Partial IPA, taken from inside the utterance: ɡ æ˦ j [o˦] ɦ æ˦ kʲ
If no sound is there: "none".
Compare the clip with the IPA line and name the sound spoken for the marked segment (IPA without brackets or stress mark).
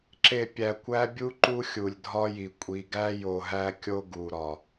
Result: o˨